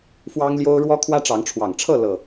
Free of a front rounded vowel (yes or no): yes